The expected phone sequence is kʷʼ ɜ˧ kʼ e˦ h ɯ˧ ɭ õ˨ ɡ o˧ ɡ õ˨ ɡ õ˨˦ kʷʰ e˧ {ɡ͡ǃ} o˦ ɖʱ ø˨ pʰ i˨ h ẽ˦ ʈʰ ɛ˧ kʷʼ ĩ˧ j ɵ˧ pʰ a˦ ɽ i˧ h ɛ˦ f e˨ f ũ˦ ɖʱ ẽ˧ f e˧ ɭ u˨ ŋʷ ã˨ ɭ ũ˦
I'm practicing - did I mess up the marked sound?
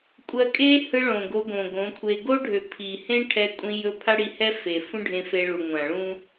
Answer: yes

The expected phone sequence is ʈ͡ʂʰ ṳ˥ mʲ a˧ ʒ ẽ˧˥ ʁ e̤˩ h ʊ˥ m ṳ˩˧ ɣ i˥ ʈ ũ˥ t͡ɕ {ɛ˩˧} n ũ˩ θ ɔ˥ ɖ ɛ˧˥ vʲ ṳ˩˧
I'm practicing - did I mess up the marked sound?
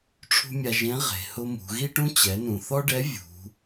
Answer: no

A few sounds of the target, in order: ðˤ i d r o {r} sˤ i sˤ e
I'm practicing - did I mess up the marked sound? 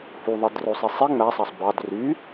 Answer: yes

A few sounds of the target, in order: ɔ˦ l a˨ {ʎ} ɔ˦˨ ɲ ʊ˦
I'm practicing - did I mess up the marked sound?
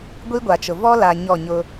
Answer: yes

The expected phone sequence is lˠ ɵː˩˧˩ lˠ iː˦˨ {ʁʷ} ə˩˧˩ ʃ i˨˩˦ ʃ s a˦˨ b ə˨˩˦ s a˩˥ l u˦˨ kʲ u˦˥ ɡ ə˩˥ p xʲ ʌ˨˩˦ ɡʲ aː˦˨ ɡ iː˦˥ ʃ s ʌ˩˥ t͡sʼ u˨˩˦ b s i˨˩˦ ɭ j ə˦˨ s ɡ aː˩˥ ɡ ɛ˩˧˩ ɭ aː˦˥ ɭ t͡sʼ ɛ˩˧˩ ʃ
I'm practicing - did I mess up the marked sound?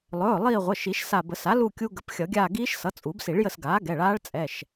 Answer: no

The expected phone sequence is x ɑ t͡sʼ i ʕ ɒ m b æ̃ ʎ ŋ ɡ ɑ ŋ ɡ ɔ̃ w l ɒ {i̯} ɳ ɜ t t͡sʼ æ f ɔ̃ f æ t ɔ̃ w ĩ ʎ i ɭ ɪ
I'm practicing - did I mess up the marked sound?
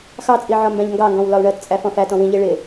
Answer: yes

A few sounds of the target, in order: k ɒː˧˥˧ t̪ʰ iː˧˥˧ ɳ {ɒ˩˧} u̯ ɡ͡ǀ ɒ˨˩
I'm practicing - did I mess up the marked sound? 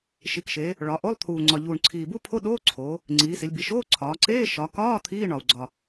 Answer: yes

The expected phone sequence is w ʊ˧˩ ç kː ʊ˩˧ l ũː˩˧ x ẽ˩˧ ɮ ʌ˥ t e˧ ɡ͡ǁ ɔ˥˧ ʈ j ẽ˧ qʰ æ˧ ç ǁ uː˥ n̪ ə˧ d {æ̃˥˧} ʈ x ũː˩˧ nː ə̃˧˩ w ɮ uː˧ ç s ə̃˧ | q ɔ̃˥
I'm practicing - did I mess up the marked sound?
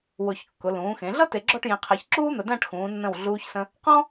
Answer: no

